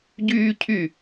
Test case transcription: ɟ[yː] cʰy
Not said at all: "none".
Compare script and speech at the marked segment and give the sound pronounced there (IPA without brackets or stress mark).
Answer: yː